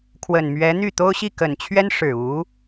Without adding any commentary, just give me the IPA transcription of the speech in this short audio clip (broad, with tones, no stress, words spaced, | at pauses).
kʰwə˨˩nmɥɛ˧˥n̪y˥˩ t̪o˥ʊ̯ɕi˥˩ kə˨˩nt͡ɕʰɥɛ˥n ʂɻ̩˨˩u˧˥